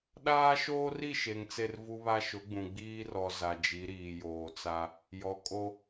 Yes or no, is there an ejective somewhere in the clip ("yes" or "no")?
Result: yes